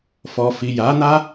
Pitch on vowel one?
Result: low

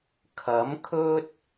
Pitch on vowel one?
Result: rising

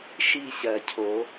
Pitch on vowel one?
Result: falling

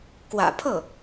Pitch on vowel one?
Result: low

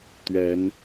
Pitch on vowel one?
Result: rising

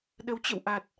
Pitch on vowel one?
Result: rising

